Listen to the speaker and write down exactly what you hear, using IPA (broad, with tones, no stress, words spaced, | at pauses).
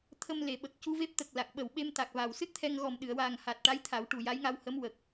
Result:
t̪ʰə˧mle˨˩˨ɓə˨˩k̚ cu˧ve˦˥p̚t̪ə˨˩k̚ la˨˩k̚ɓə˨˩wɓe˧m t̪a˨˩k̚va˨˩w sɨ˦˥t̚t̪ʰɛ˧ŋɣɔ˨˩m ɗɨ˨˩˨ə̯waː˨˩ŋha˨˩t̚ʈa˧˥j t̪ʰa˨˩˦wʈu˨˩ja˧˥jŋa˧w hə˧˥mwə˨˩k̚